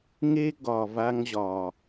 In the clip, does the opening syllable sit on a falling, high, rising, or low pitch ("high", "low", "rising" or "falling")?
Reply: high